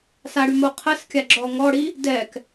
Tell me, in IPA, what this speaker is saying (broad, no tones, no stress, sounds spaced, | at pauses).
s a ɽ y m o qʰ ə s kʲ a ɡ͡ǁ ɔ ŋ ɔ ɽ i | d ɛ k